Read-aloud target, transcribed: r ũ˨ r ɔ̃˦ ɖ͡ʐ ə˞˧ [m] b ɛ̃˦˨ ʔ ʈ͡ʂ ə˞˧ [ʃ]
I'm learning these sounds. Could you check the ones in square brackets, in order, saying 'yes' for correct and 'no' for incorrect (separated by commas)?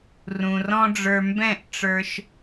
yes, yes